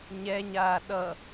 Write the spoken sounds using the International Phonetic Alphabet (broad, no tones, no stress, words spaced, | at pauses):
ɲɛɲaː ɗʌ